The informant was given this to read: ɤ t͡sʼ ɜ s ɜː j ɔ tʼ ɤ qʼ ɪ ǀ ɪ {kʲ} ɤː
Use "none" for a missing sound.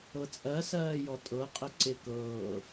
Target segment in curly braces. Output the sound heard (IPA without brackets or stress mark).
k